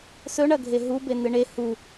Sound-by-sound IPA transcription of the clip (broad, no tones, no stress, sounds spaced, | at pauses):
s ɵ ɳ ɐ ɡʱ e ɦ u b e n ɨ ɳ e h u